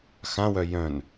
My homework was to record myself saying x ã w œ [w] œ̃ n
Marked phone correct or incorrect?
incorrect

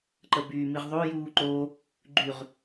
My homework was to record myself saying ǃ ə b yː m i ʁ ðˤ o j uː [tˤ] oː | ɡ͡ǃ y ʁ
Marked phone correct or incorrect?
incorrect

